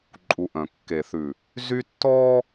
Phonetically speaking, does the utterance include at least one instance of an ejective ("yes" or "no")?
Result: yes